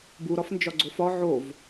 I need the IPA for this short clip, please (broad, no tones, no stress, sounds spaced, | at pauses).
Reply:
b u ɾ ɒ f n d͡ʒ ɒ ɡ͡ǀ o f ɒ ʕ o v